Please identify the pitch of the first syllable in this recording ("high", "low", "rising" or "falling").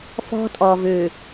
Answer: high